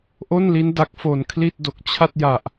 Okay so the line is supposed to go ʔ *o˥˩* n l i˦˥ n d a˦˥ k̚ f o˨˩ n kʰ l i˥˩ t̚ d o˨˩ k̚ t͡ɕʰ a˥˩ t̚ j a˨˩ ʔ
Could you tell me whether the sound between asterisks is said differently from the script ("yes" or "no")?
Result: no